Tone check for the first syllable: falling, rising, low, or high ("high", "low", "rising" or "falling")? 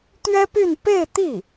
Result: high